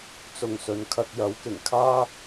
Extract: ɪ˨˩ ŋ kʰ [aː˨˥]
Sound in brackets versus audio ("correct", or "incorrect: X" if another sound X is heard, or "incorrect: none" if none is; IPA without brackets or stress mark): incorrect: aː˥